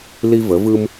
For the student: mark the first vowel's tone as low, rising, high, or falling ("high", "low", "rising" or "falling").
high